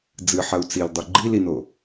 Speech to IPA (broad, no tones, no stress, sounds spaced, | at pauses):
d͡z ɨ ħ ɐ u̯ t͡s i l dˤ u ɡ͡ǃ i l i n o